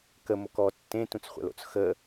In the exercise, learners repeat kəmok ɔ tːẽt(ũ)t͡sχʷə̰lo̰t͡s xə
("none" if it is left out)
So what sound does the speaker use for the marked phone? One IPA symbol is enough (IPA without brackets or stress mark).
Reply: ũ